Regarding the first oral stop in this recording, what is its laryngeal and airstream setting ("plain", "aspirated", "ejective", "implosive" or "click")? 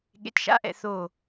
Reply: implosive